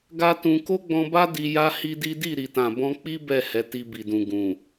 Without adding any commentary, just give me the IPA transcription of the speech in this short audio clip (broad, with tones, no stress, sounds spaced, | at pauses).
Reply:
ɡ a˦ t ũ˧ k o˦ ɡ͡b ɔ̃˧ b a˦ d i˧ j a˦ h i˦ d i˦ d i˦˨ ɾ i˨ t ã˨ b ɔ̃˧ k͡p i˦ b ɛ˦˨ h ɛ˨˦ t i˧ b i˨ d ũ˨ ɡ ũ˨